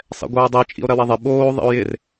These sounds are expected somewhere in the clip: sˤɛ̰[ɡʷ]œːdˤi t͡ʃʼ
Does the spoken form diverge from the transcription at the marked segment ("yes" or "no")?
no